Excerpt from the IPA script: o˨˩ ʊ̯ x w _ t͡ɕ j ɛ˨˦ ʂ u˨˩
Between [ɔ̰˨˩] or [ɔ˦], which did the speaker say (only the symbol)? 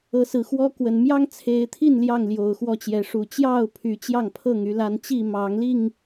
ɔ˦